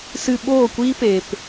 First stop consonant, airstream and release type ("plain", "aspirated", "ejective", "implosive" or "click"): implosive